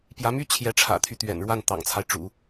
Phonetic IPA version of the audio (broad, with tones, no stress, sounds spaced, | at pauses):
p j ä˧˥ m y˥ t͡ɕʰ j ɛ˧˥ ʈ͡ʂʰ ä̰˨˩ t̪ʰ y˦ t̪ ɥ ɛ̰˨˩ n ɻ w a˥˩ n t̪ ɑ̰˨˩ ŋ t͡sʰ a˦ ɪ̯ ʈ͡ʂ ṵ˨˩˦